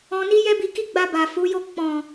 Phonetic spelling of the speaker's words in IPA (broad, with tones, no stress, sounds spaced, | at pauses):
ɔ̃˧ n i˦ j ɛ˦ b i˧ k i˦ ɡ͡b a˧ b a˨ f u˨˦ j o˦˨ k͡p ɔ̃˨